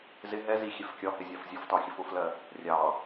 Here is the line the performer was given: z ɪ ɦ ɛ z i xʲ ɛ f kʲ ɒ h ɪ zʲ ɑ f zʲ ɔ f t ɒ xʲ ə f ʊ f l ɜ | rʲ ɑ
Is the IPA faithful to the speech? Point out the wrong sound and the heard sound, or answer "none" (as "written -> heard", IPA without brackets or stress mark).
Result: none